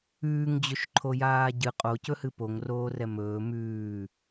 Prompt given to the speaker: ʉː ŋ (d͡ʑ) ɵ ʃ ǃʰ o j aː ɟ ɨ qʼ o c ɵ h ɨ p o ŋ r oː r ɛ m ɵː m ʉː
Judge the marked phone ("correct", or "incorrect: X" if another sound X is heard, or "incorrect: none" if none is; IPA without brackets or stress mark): correct